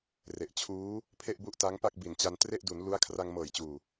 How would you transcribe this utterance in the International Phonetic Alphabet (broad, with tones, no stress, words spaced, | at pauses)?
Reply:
re˨˩ʔt͡ɕʰuː˦˥ | pʰe˥˩ʔbu˥˩ʔ ta˦˥ŋpa˥˩k̚bi˨˩nt͡ɕa˧n tre˥˩ʔdu˩˦n lu˦˥a̯ kʰra˧ŋmɤː˨˩jt͡ɕuː˨˩